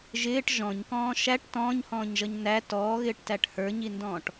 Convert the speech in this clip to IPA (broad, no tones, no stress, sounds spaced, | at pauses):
ʒ ɪː ʈ ʒ ɔ̃ ɲ k ɔ̃ː ʃ æ ʈ t ɔ̃ː ɲ h ɔ̃ː ɲ ʒ ʌ ɲ n æ t ɔː ɣ ɪː ʈ t æ ʈ h ə˞ ɲ i n d ɔ̃ː ʈ